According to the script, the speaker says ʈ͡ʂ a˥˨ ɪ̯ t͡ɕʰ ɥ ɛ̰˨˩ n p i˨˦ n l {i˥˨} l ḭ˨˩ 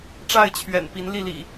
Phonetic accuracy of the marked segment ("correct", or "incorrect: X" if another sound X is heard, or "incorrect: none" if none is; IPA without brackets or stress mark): correct